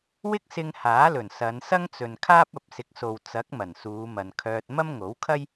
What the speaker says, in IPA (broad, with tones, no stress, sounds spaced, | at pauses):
w ɪ˥ k̚ s ɪ˧ ŋ h aː˨˥ l ɵ˨˩ n s ɐ˨˧ n s ɐ˥ ŋ t͡s ɵ˨ n kʰ aː˥ p̚ ɐ˨ p̚ s ɪ˨˥ k̚ s o˨ w t͡s ɐ˨˥ k̚ m ɐ˨˩ n s uː˨˧ m ɐ˨ n kʰ œː˧ t̚ m ɐ˥ m ŋ o˨˥ w kʰ ɐ˥ j